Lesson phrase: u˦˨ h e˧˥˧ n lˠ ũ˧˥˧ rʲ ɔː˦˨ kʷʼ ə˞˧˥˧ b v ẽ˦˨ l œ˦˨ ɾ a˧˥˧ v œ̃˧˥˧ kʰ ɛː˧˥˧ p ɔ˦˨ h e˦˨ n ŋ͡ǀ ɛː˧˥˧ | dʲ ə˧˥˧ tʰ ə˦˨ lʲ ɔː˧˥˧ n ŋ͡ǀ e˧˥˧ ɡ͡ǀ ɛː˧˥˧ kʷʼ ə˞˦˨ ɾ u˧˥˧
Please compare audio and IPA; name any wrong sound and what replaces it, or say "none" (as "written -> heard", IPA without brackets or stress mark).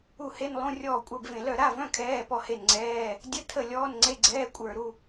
none